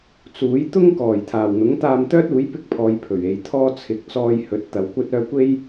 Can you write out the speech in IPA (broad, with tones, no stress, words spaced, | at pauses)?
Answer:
t͡suː˨˥j t̪ʊ˥ŋkɔː˨˩j t̪ʰaː˨˩wn̪ʊ˨˥ŋ t̪aː˧mt̪œː˥t̚uː˨˥j pɪ˧k̚pʰɔː˨j pʰɵ˨˩ɥe˨j t̪ʰɔː˧ t͡sʰɪ˨k̚ t͡sɔː˧j hɵ˨˥t̚ t̪ɐ˨˧wkʷɐ˥t̚œː˥ kʷe˥j